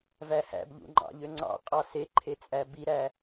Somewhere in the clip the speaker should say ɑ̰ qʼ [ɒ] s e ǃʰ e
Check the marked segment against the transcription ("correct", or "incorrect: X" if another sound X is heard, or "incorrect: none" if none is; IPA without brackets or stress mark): incorrect: ɑ